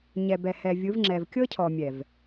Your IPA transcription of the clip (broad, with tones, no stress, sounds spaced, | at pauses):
ɲ ɛ˨ b ɛ˨ h ɛ˨ vʲ ɯ˨˦ v ŋ͡ǁ ɛ˨ v kʲ ɤ˦ cʰ ɔ˨ mʲ ɛ˨ v